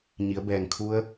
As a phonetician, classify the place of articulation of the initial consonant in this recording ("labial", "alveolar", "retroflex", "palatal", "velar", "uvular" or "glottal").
palatal